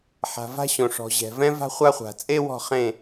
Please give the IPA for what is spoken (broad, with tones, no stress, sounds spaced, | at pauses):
ħ a̤˨ v a̤˦ ɕ õ˨ ʂ ɔ̤˨ ʑ ɛ̤˨ v ɛ̃˦ v a̤˦ χʷ a˦ χʷ a̤˨ t͡sʼ e˦ w ɔ̤˦˨ χ ẽ˦˨